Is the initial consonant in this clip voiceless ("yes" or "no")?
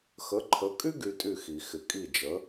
yes